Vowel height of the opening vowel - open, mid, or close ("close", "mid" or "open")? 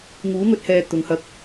close